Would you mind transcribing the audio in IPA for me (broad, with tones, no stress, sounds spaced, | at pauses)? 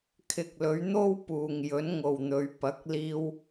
kʰ ɪ˨ k̚ l ɵ˨˧ ɥ n̪ o˥ w p uː˨ ŋ j ɵ˨˥ n ŋ o˨ w n̪ ɵ˨˧ ɥ p ɐ˨˥ k̚ l iː˧ w